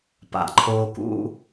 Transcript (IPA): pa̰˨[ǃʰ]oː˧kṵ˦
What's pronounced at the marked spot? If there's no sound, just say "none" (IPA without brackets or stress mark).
ǃʰ